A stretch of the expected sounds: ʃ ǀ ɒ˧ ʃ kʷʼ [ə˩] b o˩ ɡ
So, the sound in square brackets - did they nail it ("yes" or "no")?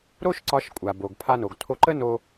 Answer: no